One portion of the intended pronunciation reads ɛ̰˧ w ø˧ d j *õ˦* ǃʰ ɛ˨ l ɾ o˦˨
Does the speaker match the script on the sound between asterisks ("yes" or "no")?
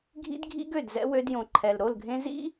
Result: no